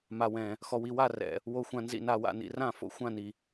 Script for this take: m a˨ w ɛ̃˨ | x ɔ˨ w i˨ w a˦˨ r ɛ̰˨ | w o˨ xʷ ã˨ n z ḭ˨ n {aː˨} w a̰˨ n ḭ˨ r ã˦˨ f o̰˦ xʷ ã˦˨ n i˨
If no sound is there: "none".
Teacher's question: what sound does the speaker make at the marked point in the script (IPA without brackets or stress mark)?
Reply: a˨